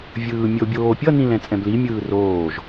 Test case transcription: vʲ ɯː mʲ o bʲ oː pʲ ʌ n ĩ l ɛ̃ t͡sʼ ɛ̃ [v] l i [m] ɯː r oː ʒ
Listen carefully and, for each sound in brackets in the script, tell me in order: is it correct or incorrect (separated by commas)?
incorrect, incorrect